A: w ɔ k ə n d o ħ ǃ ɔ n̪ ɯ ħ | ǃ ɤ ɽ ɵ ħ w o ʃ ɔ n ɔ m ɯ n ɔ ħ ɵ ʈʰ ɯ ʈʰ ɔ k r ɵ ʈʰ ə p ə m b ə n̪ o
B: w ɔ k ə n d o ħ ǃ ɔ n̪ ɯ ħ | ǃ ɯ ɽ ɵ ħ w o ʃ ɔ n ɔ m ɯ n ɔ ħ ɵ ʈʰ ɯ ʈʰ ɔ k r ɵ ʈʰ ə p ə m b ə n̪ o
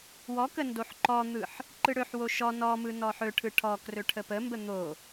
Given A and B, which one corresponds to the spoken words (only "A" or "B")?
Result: B